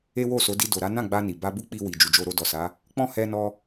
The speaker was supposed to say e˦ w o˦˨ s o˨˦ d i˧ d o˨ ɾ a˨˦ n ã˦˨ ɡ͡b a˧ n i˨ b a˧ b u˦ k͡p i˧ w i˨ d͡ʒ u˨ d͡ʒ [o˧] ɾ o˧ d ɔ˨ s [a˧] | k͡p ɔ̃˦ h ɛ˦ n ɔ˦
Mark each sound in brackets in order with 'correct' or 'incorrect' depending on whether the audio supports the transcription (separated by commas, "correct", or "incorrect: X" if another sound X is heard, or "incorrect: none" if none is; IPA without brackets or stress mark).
correct, incorrect: a˨˦